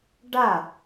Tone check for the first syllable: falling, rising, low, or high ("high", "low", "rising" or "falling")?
falling